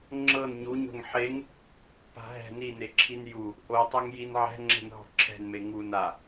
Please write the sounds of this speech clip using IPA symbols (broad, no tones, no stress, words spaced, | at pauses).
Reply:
ŋ͡ǁɤn ɲuɲo̤ŋ ħeŋ | pa̤ɦɛ̤ nineǁʰin ju | ʔotˤaŋjin ʕɛ̤ ŋ͡ǁɛ̤nɦɔ̤ǁʰɛ̤nme ŋun a